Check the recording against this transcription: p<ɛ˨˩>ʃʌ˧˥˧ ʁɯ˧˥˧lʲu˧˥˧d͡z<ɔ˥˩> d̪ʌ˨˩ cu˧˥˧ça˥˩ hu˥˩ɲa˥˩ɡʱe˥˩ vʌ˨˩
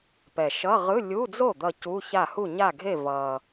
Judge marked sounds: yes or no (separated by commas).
yes, no